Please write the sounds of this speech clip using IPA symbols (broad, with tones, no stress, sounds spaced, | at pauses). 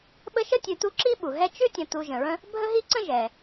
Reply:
ɓ ə˦ ʃ ə˥ tʲ ʉ˨ t u˦ ǁ i˥ ɓ u˩ ɦ ɛ˦ t͡ʃ ʉ˥ tʲ ə̃˨ t u˨ ʒ ə̃˩ ɹ ə̃˦ | bʱ ə˦ ɦ i˦ ǀ ə̃˦ ʒ ɛ˩